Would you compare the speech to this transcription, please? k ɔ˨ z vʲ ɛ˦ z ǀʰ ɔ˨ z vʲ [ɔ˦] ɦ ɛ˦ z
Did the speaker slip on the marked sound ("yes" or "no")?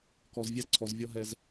no